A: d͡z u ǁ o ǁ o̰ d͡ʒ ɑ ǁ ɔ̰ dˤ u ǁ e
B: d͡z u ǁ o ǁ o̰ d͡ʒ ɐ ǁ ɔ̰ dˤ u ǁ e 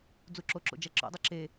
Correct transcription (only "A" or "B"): B